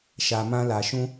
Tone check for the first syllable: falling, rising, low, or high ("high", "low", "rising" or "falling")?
low